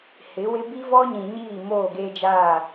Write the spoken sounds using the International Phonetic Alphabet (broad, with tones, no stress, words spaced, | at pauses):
hɪ˨˦wɪ˦ bi˦ vɔ˦ɲĩ˨ɲiː˦˨ moː˦˨ɡeː˦d͡ʒaː˦˨